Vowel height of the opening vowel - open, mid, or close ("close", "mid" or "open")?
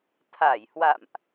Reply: open